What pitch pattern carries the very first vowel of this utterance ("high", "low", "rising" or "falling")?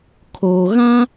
low